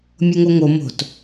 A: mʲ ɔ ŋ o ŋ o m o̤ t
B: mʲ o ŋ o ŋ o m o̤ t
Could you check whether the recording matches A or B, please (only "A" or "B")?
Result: B